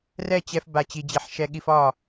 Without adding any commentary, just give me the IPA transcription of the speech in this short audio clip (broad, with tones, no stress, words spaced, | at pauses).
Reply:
rɛ˥˨t͡ɕɛ˧f ba˥˨t͡ɕi˧d͡ʑi˧ħ ʃɛ˧ɠi˧f ɒ˥˨